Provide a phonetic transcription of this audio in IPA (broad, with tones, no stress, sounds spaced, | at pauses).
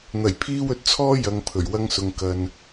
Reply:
n̪ ɐ˨˩ j pʰ iː˧ w ɵ˨ t̚ t͡sʰ ɔː˧ j ɐ˨ ŋ pʰ ɵ˨˩ ɥ w ɐ˧ ŋ s ʊ˨ ŋ k ɐ˨ n